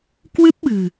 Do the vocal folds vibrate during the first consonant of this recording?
no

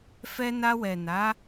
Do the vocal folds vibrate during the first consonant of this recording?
no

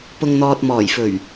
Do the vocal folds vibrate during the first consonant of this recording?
no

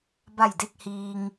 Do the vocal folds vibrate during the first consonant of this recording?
yes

